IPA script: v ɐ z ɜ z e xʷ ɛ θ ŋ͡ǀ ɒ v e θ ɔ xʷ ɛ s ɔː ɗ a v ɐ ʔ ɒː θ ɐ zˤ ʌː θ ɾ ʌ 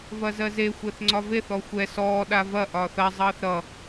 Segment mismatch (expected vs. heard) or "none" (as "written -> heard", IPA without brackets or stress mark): none